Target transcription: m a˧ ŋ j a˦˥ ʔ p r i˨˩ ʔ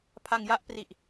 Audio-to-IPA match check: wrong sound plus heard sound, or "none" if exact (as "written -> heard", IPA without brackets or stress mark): m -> pʰ